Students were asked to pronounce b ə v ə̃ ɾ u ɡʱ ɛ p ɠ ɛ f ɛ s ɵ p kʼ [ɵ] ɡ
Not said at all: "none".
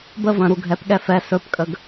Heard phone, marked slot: ə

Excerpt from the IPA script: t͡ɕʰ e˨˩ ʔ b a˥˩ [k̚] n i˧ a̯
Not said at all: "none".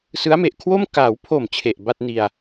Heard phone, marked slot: t̚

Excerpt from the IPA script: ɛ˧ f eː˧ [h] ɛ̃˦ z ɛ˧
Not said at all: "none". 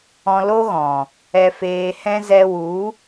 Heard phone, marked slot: h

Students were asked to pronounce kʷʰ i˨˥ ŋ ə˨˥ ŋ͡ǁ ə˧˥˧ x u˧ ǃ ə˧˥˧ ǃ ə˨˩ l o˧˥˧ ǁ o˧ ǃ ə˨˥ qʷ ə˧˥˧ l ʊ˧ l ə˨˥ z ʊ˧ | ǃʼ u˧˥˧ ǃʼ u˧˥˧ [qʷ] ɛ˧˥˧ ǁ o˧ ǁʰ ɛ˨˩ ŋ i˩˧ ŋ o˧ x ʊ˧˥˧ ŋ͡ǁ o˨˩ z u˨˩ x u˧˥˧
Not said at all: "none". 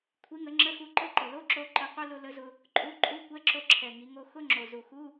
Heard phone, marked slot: kʷ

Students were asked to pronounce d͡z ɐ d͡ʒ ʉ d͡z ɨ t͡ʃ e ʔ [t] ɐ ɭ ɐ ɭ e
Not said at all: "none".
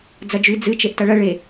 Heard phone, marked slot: t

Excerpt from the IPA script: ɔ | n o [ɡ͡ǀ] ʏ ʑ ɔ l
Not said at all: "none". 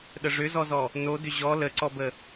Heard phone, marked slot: d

